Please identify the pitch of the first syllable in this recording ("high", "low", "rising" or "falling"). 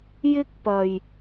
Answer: high